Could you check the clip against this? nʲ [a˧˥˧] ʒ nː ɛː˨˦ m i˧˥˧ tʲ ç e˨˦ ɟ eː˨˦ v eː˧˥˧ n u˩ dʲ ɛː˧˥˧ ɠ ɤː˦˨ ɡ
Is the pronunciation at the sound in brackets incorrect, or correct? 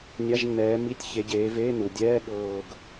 correct